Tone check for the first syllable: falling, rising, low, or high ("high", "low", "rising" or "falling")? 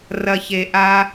low